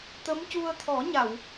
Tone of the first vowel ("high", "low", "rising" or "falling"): rising